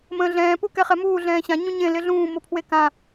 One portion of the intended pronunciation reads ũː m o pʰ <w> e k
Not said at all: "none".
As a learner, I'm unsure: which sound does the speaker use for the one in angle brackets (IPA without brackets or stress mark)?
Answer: w